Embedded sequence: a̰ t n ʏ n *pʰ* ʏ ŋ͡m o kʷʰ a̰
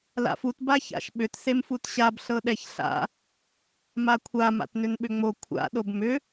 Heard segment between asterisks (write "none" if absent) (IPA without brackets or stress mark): ɓ